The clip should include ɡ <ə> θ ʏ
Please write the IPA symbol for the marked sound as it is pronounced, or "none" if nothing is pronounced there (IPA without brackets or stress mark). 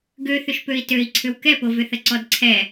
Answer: ø